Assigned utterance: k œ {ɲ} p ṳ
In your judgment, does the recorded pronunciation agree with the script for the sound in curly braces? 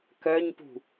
yes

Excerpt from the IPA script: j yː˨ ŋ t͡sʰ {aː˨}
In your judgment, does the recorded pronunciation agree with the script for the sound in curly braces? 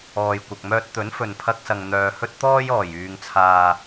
yes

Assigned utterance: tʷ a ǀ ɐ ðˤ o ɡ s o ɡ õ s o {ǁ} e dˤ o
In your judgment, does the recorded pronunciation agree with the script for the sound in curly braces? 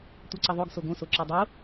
yes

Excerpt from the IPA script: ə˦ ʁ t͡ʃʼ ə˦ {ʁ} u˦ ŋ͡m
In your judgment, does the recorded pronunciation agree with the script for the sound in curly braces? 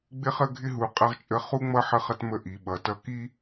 no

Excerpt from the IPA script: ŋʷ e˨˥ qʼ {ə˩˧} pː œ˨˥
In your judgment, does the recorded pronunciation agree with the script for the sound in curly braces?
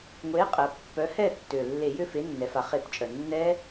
yes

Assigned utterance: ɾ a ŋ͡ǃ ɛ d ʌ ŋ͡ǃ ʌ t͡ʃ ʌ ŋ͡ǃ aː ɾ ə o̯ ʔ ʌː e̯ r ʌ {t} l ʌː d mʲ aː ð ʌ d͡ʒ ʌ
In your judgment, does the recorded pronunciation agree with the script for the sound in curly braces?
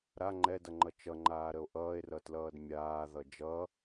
yes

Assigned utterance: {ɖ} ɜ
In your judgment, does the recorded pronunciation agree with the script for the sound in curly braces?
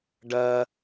yes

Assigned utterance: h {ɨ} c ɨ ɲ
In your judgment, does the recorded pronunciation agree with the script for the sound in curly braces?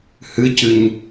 yes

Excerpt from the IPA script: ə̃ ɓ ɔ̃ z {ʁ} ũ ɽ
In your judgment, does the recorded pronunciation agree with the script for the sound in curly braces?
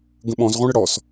yes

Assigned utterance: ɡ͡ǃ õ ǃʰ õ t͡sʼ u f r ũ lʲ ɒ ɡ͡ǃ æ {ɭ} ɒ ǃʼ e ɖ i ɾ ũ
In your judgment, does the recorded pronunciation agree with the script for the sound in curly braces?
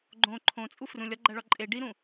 yes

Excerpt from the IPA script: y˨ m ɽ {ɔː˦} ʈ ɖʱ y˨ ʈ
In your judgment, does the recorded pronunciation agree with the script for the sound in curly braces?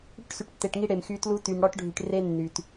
no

